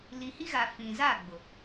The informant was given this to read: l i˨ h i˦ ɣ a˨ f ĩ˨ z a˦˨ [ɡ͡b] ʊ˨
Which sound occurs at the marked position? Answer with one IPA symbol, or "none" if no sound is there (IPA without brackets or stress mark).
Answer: ɡ͡b